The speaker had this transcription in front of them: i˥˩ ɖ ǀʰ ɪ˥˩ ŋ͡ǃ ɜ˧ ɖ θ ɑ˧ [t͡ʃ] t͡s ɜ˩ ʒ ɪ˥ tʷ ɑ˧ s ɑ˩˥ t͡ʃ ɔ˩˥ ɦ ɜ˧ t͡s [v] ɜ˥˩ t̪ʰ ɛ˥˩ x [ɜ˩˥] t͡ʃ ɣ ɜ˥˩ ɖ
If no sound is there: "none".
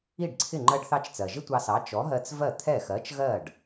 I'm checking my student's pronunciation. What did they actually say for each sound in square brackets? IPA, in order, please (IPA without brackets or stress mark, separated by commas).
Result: t͡ʃ, v, ɜ˩˥